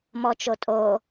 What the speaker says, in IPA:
m ɔ t͡ʃ o tʼ o

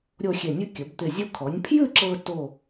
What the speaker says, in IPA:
ɾʲ o˥˧ xʲ e˧˩ nʲ ʉ˥ kʲ ə˩˧ b t̪ ɪ˧˩ zʲ o˧ kʰ ɔ˩˧ nʲ pʰ j ʉ˥˧ ǁ ɤ˧ t o˧˩

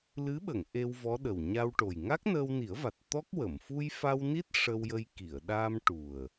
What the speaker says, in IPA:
l ɨ˧˥ ɓ ə˨˩˨ ŋ ʔ e˧ w v ɔ˧˥ ɗ ə˨˩ w ɲ a˧ w ʈ o˨˩ j ŋ a˦˥ k̚ n əː˧ w n i˨˩˦ ə̯ v a˨˩ t̚ t̪ ɔ˦˥ k̚ w ə˨˩˨ m f u˧ j f a˧ w n i˦˥ t̚ ʂ ə˧ w j ə˧ j k i˨˩˨ ə̯ ɗ a˧ m ʈ u˨˩ ə̯

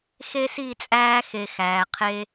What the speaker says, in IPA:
x e˦ s i˦˨ t͡sʼ æː˦ x e˧ x æː˨ qʰ e˦

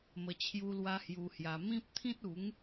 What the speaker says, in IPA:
m ə˧ t͡ɕʰ j u˦ l w a˦ h j u˧ h j a˧ m ĩ˦ p̚ t̪ʰ ĩ˦ t̚ u˨˦ ŋ

